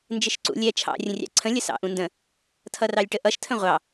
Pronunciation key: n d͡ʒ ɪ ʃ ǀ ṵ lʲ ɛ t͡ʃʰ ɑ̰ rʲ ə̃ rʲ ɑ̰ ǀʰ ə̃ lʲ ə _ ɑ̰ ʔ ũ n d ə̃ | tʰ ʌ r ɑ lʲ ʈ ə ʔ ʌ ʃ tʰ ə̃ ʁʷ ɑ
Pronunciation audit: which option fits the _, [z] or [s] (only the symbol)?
s